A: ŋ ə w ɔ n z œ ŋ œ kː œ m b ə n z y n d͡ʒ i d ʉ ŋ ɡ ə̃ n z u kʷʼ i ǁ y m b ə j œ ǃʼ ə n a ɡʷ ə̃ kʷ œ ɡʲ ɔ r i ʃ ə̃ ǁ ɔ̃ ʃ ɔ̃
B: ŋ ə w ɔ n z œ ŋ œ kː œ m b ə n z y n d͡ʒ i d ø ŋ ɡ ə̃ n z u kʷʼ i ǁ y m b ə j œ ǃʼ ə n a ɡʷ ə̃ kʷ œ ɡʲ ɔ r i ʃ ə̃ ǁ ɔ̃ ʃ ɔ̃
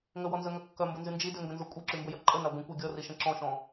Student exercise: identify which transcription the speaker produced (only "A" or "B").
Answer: B